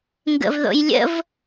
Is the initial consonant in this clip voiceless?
no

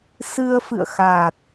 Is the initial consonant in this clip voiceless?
yes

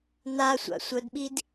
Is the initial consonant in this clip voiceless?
no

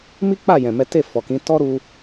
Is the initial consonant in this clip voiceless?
no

